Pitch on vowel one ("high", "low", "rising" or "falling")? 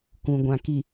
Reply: low